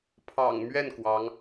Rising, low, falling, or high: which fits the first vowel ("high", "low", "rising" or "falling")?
low